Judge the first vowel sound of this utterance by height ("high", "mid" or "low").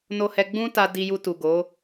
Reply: mid